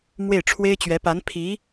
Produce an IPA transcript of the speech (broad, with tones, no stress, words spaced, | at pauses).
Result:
mwe˥˩ɪ̯ʈ͡ʂʰwe˥ɪ̯t͡ɕɥɛ˧˥ pa˧˥npʰi˧˥